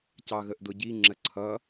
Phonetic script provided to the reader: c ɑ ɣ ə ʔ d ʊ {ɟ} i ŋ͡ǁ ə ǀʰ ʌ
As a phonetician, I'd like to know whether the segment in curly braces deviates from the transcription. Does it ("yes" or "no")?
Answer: no